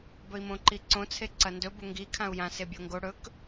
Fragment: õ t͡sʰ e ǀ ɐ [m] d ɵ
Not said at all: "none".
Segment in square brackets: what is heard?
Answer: n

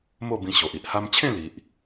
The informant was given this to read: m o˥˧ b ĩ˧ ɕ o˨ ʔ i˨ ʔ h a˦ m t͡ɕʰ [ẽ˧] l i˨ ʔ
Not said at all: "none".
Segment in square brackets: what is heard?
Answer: ẽ˥˧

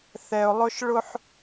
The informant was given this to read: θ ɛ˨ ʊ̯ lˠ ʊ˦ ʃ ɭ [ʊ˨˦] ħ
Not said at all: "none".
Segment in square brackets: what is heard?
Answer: ʊ˦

